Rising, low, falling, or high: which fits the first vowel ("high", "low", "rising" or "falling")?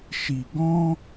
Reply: low